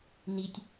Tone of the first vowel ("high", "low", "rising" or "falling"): low